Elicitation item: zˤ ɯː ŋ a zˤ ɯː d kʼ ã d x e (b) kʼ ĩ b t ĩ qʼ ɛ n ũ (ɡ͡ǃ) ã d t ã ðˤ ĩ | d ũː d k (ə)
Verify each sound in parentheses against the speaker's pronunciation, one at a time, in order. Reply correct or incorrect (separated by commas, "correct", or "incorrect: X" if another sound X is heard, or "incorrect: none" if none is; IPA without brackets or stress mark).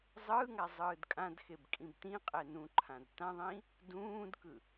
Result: correct, incorrect: ǃʰ, incorrect: ɯ